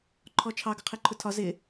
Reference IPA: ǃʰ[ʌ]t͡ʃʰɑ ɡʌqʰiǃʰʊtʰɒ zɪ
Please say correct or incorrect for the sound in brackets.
incorrect